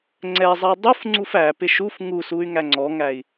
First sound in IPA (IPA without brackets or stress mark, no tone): ŋ͡ǀ